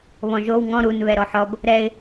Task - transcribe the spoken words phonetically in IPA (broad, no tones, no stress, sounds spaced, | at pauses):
β ɔ̃ ʒ o w ŋ ɔ̃ ɾ u n β ɛ ɾ ɔ ħ ɔ b | ɾ ɛ ɪ̯